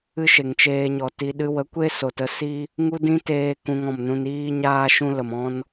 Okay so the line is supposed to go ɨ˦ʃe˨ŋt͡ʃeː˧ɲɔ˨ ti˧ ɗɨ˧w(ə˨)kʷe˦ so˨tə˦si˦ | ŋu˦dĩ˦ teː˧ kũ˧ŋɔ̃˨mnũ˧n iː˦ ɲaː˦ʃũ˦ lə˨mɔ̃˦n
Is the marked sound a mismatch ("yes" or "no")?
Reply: yes